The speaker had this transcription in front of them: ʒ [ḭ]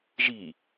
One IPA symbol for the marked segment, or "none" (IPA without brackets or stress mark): i